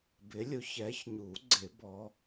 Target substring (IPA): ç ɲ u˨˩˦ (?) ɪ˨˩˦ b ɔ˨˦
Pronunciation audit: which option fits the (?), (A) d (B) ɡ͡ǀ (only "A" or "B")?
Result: B